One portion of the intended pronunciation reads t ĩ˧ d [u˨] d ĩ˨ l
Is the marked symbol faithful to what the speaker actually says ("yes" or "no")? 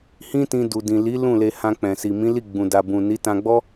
yes